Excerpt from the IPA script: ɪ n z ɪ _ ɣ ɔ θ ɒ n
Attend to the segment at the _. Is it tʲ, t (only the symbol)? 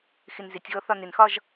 tʲ